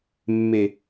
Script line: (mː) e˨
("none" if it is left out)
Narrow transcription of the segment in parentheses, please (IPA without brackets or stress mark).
mː